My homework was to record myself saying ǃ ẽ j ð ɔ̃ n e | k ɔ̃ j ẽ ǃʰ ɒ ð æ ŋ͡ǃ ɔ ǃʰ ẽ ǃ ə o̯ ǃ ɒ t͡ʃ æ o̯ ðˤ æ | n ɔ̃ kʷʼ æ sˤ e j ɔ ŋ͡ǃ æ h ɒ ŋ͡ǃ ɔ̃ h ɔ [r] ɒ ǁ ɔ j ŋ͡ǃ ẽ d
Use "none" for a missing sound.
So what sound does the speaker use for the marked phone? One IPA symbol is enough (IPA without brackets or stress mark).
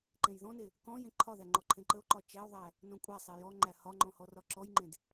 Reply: r